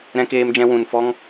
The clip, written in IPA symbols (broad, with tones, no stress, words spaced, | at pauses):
ɾɛ̃˧keː˧md͡ʒɛ̃˧ wũ˨nfɔ˦ŋ